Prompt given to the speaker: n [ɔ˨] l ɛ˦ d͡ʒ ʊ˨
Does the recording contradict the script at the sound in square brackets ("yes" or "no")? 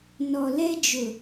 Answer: no